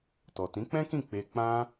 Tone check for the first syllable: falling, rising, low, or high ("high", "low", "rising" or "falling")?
low